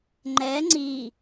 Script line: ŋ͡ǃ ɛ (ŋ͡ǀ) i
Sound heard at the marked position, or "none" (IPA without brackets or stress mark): ŋ͡ǀ